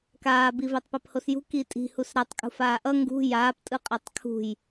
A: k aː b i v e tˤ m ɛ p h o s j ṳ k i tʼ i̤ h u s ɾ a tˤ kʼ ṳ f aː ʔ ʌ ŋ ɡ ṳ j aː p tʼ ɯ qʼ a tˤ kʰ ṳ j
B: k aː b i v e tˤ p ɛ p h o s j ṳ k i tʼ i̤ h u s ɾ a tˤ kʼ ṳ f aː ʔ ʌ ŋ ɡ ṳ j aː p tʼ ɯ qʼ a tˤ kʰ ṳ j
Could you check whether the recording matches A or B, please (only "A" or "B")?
B